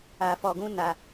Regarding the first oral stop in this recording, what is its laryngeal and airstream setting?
plain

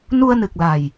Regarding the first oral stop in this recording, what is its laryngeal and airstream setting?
plain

